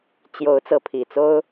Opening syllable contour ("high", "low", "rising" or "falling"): rising